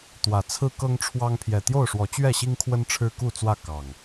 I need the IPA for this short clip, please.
t̪ w ä˨˩ t͡sʰ ɹ̩˦ k ɤ˦ ŋ ʈ͡ʂʰ w ɑ˦ ŋ pʰ j ɛ˨˩ t̪ j o˥˨ ʊ̯ ʂ w ɔ˨˦ t͡ɕ ɥ ɛ˥˨ ɕ i˦ ŋ kʰ w ə˦ n ʈ͡ʂʰ ɻ̩˦ k u˥˨ t͡s w ä˥˨ k ɑ˨˩ ŋ

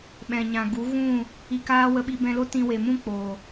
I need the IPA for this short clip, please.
ɓ ɛ̃˨ ɲ ã˨ ɡ u˨˦ ɣ ũ˦˨ | i˧ k aː˦ w ə˧ ɓ i˧ b ɛ̃˧ l o˦ t ĩ˧ w e˨ m ũ˦ k͡p oː˨

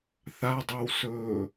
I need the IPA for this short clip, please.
θ a dˤ e w s ɵː

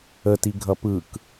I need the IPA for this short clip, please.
ə t i ɡʱ ʌ p ɯ k

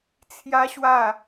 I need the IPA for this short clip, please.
t͡sʰ j a˦ ɕ w a˥˧

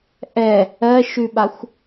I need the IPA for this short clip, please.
ʔ ɛ | ɜ ʃ ʉ ɓ a xʷ

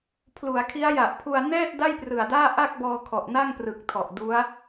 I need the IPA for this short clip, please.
pʰ l u˩˦ a̯ kʰ i˦˥ a̯ j a˨˩ ʔ pʰ u˧ a̯ n ɛː˥˩ t̚ d a˥˩ j p r ɯ˨˩ a̯ d aː˥˩ ʔ a˥˩ k̚ b ɔː˧ kʰ ɔ˨˩ ʔ n a˥˩ ŋ p r ɯ˨˩ k̚ tʰ ɔ˨˩ ʔ d u˦˥ a̯

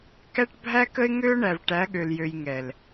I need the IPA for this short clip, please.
k æ˦ ʈ bʱ æ˦ k ə˦ ɪ̯ ŋ ø˦ ʊ̯ ɳ æ˨ v ʈ æ˨˦ ɠ ø˨ l j ø˨ j ŋ ɛ˨ l

